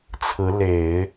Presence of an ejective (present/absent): absent